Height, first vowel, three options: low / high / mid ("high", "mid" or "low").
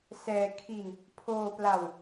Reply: mid